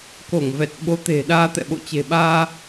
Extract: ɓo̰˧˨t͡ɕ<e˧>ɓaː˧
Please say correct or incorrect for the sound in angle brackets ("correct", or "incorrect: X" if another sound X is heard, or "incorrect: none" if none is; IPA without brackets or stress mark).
incorrect: e̤˨˩